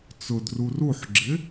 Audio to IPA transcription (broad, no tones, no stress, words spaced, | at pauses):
t͡sʊdru ruħɡ͡ǁɪ